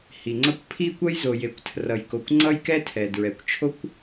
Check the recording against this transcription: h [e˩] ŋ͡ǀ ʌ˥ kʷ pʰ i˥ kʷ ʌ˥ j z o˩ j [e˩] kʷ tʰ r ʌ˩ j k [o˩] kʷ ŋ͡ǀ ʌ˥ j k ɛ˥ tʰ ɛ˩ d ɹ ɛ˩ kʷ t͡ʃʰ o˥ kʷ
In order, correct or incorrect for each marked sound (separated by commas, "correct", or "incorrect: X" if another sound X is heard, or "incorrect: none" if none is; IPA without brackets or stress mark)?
incorrect: i˩, correct, correct